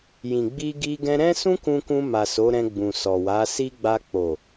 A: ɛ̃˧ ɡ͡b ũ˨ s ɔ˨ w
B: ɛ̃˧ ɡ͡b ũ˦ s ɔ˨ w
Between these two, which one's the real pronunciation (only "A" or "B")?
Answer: A